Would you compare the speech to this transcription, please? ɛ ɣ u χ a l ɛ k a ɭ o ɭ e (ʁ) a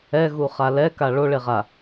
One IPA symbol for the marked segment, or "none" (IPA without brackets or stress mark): ʁ